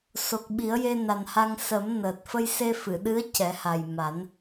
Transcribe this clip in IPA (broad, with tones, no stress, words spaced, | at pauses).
so˨˩k̚ɓi˨˩˦ə̯ je˧na˨˩nha˧ŋ sə˨˩˦m nəː˨˩t̚ fə˧jse˧fɨ˨˩˨ɗɨ˧˥ə̯ cɛ˨˩˦ha˨˩j ma˨˩˦n